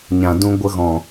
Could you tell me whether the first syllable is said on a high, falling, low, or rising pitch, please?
low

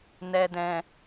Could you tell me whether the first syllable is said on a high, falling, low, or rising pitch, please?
low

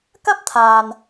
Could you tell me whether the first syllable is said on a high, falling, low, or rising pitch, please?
high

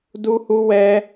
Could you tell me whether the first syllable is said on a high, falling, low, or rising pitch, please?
high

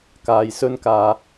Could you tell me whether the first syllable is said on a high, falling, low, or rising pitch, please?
low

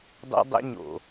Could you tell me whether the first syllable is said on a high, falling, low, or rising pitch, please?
high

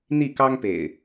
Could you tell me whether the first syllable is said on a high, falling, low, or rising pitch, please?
falling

